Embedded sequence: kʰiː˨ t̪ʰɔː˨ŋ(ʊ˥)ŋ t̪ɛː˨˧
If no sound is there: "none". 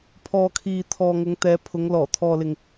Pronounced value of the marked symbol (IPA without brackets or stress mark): ʊ˨˧